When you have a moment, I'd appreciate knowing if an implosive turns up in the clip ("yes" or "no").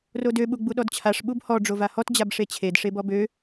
yes